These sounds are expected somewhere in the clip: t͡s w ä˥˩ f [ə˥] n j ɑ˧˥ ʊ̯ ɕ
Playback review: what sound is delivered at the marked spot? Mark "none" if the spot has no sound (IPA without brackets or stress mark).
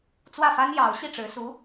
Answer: a˥